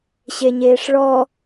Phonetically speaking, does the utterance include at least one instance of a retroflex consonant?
yes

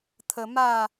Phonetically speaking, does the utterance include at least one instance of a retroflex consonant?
no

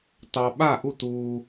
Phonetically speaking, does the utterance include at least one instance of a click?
no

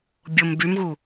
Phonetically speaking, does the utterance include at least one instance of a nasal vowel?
no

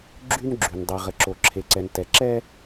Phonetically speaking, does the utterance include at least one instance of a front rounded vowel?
yes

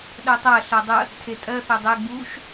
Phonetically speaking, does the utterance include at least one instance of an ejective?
yes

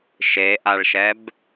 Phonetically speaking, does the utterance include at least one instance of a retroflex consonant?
yes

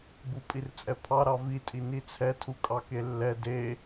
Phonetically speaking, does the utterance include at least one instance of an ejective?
yes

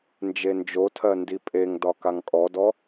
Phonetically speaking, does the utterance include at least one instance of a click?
no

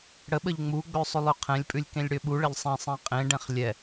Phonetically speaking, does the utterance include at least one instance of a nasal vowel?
yes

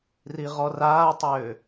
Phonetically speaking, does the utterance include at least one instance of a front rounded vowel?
yes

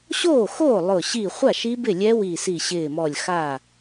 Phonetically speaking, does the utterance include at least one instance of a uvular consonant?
yes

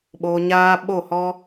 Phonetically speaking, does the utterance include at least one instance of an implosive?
yes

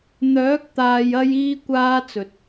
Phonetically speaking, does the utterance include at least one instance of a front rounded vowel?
yes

